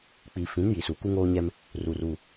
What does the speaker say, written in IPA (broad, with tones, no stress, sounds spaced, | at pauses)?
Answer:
k͡p i˨ f ĩ˨˦ n j i˨ s u˨ k u˦ ŋ oː˦ ɲ ɛ˦ m | r u˨ r u˨